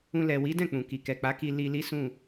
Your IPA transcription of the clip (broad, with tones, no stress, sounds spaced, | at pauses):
ũ˧ l ɛ˨ w i˨˦ d ɛ̃˦˨ k͡p ũ˨ k i˨ k ɛ˨ k͡p a˨˦ k i˧ l i˧ l i˦ s ũ˦˨